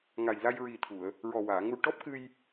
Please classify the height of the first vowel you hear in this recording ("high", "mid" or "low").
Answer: low